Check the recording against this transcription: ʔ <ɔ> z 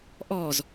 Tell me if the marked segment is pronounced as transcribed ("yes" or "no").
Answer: yes